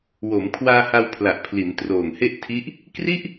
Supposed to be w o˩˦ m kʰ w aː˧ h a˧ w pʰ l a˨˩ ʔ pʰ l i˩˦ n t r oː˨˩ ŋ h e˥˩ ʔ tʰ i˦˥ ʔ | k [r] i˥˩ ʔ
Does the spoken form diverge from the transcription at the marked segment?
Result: no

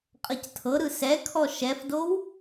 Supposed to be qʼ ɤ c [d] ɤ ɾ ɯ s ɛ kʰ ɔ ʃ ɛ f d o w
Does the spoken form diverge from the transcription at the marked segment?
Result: yes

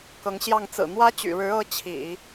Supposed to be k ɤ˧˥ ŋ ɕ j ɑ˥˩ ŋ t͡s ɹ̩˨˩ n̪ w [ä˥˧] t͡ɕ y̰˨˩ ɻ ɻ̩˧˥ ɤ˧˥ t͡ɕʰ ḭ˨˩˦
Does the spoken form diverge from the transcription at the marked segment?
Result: yes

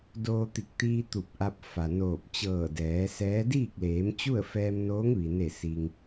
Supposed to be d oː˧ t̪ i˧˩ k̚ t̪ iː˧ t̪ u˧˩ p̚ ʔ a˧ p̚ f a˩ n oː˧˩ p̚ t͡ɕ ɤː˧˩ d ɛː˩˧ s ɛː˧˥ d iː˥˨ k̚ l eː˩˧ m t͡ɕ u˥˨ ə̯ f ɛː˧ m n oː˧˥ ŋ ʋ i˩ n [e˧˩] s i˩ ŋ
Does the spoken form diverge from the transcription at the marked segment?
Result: no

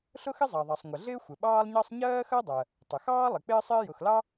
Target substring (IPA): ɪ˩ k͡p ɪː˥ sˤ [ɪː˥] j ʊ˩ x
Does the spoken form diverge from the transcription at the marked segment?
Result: no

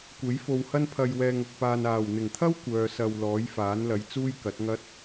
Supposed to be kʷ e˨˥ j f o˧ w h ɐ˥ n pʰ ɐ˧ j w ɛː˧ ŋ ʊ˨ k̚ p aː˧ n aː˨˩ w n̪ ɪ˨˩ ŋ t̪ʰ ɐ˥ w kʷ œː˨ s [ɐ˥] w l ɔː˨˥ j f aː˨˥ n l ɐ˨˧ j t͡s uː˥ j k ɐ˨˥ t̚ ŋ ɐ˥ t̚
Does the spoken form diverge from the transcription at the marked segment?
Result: yes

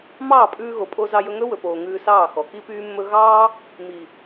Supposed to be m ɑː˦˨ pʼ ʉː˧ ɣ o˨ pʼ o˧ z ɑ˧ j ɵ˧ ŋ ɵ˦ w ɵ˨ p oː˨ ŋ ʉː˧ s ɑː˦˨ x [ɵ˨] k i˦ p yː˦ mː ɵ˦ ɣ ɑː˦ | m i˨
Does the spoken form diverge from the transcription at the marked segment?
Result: yes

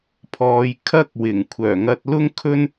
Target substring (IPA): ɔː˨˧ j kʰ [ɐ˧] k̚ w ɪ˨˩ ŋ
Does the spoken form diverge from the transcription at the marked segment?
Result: yes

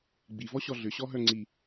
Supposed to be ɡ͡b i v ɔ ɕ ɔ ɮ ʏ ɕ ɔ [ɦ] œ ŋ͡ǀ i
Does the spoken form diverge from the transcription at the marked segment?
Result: no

